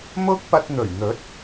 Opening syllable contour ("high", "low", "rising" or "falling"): high